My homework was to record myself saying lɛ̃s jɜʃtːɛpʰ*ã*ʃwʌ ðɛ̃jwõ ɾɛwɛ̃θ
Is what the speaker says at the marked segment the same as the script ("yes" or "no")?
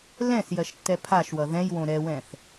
no